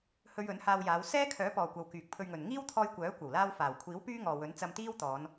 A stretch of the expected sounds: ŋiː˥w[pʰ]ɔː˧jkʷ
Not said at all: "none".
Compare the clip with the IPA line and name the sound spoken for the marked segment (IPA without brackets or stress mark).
t̪ʰ